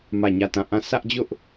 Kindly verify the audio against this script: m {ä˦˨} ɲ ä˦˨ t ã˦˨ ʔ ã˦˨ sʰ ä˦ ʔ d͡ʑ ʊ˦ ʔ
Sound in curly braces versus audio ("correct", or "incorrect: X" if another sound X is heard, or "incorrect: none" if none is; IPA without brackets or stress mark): correct